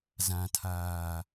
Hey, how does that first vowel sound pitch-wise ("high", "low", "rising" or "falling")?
low